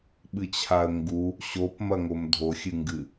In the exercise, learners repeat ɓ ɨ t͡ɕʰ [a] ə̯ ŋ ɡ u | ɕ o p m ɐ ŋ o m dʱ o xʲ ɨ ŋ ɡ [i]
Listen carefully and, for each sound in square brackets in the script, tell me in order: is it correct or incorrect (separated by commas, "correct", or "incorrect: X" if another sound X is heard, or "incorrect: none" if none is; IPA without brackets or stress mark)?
correct, incorrect: ɨ